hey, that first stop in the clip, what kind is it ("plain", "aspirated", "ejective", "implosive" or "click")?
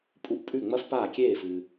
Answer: ejective